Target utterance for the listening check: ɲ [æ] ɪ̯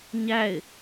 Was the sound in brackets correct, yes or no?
yes